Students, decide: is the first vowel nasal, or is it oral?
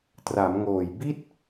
oral